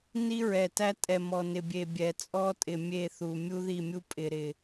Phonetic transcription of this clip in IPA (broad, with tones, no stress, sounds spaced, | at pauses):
n i˦ ɹ ɛ˨ t æ˦ tʼ ɛ˨ m ɔ˨ n ɪ˨ bʲ e˨ bʲ ɛ˨ t͡sʼ ɔ˦ tʼ ɪ˨ mʲ e˦˨ θ u˨ mʲ u˦ ð i˦˨ mʲ u˦ pʼ ɪ˨ ɾ ɪ˨